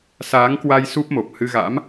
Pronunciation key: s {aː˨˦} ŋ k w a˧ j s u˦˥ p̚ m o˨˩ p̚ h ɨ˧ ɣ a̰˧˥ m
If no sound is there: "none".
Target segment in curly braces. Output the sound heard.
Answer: aː˨˦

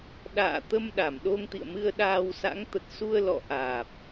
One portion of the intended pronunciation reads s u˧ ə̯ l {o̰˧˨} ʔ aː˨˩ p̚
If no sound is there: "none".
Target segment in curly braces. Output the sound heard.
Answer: ɔ̰˧˨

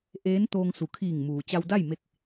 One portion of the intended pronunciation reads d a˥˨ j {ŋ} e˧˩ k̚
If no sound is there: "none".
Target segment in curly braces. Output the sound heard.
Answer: m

